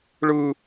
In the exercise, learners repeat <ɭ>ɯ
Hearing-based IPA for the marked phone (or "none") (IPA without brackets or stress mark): ɭ